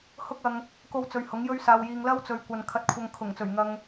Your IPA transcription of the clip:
h ʊ˥ k̚ ɐ˧ ŋ | k o˧ w t͡s ɵ˨ ɥ h ʊ˨˥ ŋ j ɵ˥ ɥ s aː˧ w j iː˧ ŋ l ɐ˥ w t͡s ɵ˨ ɥ kʷ ɐ˨ n kʰ ɐ˧ t̚ kʷʰ ɐ˧ ŋ kʰ ʊ˨˩ ŋ t͡s ɵ˨˩ ɥ ŋ ɐ˨ ŋ

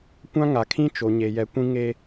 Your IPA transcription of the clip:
kʷ ã˦ ŋ a˨ kʰ ĩ˦ t͡ʃ o˨ ɲ e˨ j ɛ˨ kʷ ĩ˦ ŋ eː˦

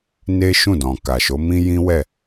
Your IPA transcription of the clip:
n e˦ ʃ ũ˦˨ d ɔ̃˨ k a˨ ʃ o˨˦ m ĩ˦ j ĩ˦ w ɛ˦˨

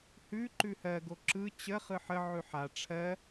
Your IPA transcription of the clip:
h ʉ ǃ ʉ h ɜ ɡ o ǁ ɯ t͡ɕ ə χ ɯ ħ ə ʕ ʉ ħ a ʈ͡ʂʰ ɜ

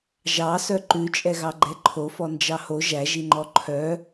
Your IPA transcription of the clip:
ʒ ɑ s œ ǃ ʉ t͡ʃʼ ɛ ɣ ɑ ɡ͡ǃ ɛ ǃʰ o f ɔ n d͡ʒ ɑ h o ʒ æ ʒ i ŋ͡ǃ ɔ ǃʰ œ

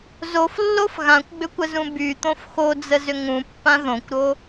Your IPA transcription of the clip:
z o f lː o f ɣ ã kʷ ɡ͡b ʏ kʷ ə z ũ b y t̪ õ f x o d͡z ə z ʏ ŋ ũ pː ã ð õ kʷ ɾ o

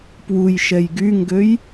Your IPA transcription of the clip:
p w u j ʃ ɛ j ɡ y ŋ ɡ ø j

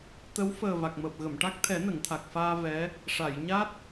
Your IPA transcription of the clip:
t̪ ə˧˥ w f əː˨˩ v a˨˩ k̚ m əː˨˩ p̚ ɣ ə˨˩˨ m ʈ a˦˥ k̚ t̪ʰ ɛ˨˩˦ n ə˨˩˨ ŋ t̪ʰ a˨˩ k̚ f aː˧ v ɛ˧˥ | ʂ a˨˩˨ j ɲ a˦˥ t̚

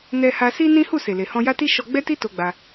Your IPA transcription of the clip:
n ɛ˧ h a˧ s i˦ n ĩ˦ h u˦˨ s e˨ l e˨ h ɔ̃˧ j a˦ t i˦ ʃ ɔ˧ ɡ͡b ɛ˦ t i˦ t o˧ ɡ͡b a˧

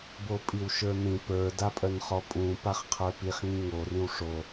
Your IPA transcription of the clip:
b o pʼ i w ʃ ə˞ n ĩ p ə˞ d a pʼ œ n χ ɔ pʼ ũ p a χ qʰ ə˞ p i χ ŋ ĩ ŋ o r ĩ w ʂ o

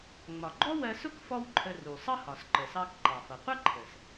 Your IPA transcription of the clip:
ŋ͡m ɒ˩ ɡ͡ǃ ɔ˥ w ɜ˧ s ʊ˥ k f ɔ˥ w ǃʰ ə˧ r u˩ sˤ ʌ˥ h ɒ˩ s ǃ ə˩ s ɑ˧ k ǃ ɑ˩ f ʌ˩ qʷ ʌ˥ ǃʰ ə˩ s

